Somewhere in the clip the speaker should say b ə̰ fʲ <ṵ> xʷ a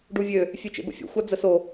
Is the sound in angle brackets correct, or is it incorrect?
incorrect